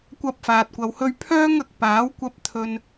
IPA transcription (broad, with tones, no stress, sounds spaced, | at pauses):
kʷ ɐ˥ p̚ f aː˧ t̚ kʷ ɐ˧ w h ɵ˥ ɥ pʰ œː˥ ŋ ɐ˨ k̚ p aː˨˥ w kʷ ɐ˧ p̚ t̪ʰ ɵ˧ n